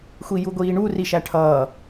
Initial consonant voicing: voiceless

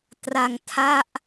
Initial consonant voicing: voiceless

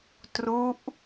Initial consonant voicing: voiceless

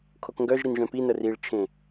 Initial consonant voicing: voiceless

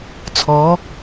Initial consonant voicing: voiceless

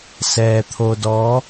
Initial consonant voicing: voiceless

